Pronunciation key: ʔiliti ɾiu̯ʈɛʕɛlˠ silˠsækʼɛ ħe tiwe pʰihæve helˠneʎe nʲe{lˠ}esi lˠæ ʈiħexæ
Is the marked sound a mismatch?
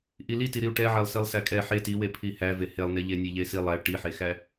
yes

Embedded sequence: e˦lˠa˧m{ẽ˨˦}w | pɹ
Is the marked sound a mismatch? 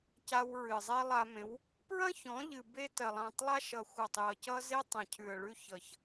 no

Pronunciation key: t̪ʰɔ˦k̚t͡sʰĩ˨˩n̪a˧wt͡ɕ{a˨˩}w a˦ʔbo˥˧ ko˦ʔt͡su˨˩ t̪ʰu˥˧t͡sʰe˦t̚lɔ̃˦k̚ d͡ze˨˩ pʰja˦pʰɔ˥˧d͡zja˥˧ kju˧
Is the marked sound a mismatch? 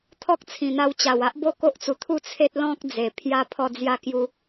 no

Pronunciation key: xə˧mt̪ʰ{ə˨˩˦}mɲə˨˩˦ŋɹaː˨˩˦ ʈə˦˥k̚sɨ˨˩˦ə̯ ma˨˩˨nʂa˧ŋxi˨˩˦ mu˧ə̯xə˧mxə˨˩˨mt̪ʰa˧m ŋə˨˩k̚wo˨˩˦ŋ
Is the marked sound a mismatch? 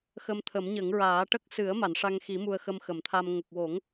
no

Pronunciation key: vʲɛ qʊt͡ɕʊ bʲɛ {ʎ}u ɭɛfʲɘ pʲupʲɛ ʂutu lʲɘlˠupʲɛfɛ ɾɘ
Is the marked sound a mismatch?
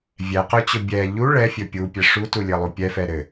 no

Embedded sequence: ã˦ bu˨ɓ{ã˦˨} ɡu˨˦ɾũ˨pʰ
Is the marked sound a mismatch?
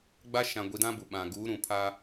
yes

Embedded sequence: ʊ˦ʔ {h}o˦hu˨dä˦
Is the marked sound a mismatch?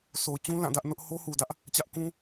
no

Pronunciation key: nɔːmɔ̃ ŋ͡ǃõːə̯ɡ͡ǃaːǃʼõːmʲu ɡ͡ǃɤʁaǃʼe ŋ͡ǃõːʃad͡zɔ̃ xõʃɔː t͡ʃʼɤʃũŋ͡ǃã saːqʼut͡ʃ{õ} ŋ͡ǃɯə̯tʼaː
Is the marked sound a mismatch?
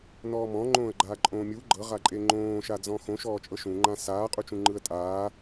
yes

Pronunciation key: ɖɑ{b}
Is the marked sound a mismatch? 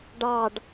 yes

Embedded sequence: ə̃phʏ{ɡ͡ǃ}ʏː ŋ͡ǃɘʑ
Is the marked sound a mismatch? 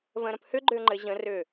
no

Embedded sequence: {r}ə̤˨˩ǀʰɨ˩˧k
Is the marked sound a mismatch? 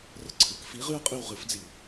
no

